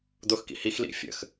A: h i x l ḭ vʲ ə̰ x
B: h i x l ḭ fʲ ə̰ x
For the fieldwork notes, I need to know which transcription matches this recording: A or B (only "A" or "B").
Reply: B